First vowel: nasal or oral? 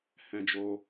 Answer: nasal